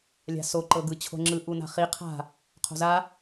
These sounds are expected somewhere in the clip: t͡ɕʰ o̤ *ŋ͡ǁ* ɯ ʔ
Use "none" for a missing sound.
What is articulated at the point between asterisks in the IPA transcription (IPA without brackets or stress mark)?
ŋ͡ǁ